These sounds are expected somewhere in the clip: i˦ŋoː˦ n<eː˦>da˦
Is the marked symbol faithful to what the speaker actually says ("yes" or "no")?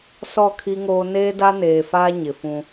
yes